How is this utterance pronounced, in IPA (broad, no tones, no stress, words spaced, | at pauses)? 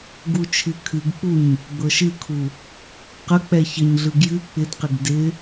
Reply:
ɡut͡ʃʰɨkʰɨɡk͡puɲ | ɡ͡bɤʃɨkʰu | qə k͡pɛçəɲɮɯ ɡjɨ k͡pɪdqɪɡ dɪ